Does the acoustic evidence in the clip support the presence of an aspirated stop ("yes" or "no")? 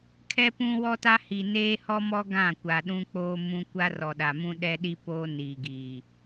yes